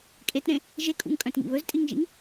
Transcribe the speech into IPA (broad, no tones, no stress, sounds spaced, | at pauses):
kʼ e t ɾ ẽ | ʒ e kʼ ṵ ŋ kʼ œ̃ t ŋ ḭ β ɵ z tʼ i ŋ ʒ ḭ ŋ